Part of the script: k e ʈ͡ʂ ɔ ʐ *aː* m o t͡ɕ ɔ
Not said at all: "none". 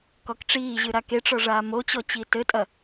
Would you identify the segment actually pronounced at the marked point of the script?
aː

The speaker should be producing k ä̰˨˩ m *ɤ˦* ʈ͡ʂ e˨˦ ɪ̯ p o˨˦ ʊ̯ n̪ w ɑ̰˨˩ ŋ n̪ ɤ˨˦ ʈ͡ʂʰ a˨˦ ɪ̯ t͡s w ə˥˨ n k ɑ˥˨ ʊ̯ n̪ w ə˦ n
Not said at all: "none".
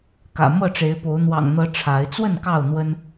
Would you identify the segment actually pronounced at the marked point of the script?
ɤ˥˨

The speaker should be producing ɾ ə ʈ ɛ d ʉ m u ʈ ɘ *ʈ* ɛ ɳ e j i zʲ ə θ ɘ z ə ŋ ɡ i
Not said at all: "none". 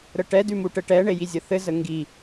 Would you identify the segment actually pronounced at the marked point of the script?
ʈ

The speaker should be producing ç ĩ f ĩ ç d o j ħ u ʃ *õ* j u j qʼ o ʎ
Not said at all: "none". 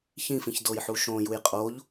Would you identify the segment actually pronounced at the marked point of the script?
õ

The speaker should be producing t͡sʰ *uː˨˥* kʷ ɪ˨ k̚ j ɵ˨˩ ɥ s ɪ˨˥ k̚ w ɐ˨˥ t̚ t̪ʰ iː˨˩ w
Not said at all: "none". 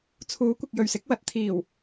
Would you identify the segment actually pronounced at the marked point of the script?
uː˨˥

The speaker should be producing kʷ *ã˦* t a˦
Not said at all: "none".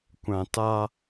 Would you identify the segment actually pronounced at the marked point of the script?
ã˨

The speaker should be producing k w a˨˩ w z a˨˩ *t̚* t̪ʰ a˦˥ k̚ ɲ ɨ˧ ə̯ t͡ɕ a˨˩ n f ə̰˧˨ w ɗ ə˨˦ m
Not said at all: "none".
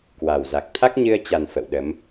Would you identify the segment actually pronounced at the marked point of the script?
k̚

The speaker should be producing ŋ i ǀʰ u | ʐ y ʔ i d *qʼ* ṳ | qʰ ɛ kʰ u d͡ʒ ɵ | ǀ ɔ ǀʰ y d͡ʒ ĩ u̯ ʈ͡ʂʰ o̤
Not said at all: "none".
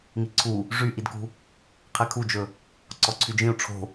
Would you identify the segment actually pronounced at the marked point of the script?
k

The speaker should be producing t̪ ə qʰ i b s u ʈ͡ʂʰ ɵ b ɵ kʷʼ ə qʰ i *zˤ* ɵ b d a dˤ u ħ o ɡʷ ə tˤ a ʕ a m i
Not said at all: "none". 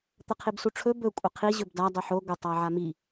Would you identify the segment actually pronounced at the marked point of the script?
ʑ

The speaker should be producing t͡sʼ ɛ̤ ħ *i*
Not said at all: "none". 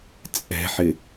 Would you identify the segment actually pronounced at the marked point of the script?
ɪ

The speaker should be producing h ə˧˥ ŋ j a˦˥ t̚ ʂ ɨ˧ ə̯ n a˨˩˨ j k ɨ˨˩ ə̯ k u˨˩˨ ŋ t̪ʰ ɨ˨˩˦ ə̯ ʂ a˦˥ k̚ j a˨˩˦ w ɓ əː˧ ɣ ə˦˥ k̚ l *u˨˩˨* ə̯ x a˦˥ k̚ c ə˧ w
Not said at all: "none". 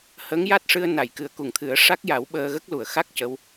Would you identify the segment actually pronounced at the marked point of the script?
u˨˩˨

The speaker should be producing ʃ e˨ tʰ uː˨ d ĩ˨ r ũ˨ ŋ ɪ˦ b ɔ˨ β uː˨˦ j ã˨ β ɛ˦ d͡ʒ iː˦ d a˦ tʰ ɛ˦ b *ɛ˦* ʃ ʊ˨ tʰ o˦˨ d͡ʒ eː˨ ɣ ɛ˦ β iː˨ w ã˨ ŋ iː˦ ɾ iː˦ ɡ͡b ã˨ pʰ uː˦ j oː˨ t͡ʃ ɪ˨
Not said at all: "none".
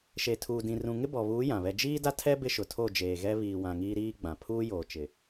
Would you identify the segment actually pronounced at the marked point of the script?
ɪ˦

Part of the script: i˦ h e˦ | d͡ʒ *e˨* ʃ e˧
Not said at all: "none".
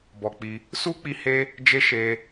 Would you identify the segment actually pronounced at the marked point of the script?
e˦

